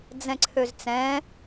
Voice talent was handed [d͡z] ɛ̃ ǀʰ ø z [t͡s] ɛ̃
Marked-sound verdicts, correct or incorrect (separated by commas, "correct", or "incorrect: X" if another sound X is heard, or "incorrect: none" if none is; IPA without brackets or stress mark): correct, correct